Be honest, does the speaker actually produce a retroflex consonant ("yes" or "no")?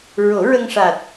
yes